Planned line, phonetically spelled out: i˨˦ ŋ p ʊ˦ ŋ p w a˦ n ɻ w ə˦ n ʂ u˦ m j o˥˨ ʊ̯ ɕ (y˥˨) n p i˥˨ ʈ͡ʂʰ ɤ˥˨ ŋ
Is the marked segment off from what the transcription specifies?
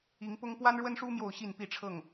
yes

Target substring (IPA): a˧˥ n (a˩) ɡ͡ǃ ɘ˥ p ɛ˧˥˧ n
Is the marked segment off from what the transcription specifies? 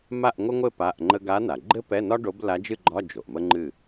no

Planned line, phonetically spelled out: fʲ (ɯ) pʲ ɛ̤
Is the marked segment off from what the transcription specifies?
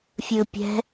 no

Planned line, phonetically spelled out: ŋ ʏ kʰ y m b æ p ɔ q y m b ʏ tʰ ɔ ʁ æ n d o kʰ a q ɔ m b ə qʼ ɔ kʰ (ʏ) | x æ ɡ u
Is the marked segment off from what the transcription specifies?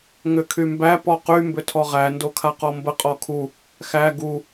yes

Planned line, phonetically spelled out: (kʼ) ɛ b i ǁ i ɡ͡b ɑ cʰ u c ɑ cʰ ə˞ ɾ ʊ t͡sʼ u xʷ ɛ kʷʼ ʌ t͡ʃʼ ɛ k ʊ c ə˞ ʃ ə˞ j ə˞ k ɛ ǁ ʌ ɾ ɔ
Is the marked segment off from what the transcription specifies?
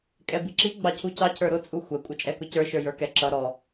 no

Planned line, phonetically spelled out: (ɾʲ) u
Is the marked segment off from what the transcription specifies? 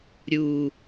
no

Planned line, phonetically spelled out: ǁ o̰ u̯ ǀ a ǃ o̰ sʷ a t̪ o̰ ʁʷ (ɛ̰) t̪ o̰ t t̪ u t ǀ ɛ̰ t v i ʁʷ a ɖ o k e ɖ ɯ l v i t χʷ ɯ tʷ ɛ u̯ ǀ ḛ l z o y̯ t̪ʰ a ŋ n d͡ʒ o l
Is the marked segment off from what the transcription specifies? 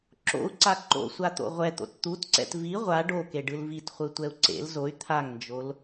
yes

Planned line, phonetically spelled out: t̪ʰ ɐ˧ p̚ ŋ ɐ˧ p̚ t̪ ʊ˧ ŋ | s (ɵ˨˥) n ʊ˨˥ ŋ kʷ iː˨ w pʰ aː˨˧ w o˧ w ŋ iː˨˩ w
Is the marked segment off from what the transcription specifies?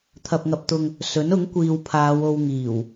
no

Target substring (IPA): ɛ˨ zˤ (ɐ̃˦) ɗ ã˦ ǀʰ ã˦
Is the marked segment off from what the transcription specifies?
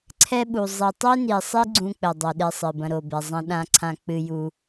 no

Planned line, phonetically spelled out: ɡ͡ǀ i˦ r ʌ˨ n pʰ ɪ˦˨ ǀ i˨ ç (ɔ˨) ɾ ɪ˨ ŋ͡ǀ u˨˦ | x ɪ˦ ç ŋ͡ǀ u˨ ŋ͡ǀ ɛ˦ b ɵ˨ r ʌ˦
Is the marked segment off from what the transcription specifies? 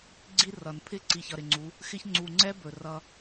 yes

